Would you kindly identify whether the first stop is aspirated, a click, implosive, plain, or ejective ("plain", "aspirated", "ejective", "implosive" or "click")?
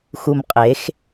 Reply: ejective